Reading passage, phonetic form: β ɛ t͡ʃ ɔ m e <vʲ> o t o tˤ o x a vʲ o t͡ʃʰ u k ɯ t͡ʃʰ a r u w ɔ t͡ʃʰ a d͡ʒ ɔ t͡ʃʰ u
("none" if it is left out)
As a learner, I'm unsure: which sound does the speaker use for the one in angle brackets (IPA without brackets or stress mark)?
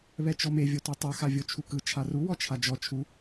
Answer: vʲ